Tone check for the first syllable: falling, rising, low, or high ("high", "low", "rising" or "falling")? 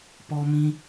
high